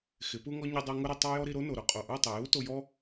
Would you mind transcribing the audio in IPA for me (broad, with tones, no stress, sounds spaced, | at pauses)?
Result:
x ɪ˨˦ p u˦ ŋ ɔ˦ ɲ ʊ˧ dˤ a˧ ŋ ʊ˦ ɾ ɪ˧ tˤ a˦ j ɔ˦ ɾ i˧ ɾ o˦ n o˨ ɾ ʊ˧ qʼ o˨ ʔ u˦˨ tˤ ɪ˨ j u˦ t o˧ j ɔ˦